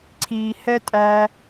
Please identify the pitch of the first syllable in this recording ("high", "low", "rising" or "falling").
low